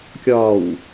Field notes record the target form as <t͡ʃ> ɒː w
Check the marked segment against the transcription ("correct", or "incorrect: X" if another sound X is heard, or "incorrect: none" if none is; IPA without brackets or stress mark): incorrect: kʲ